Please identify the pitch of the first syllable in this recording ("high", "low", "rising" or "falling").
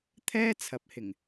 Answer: high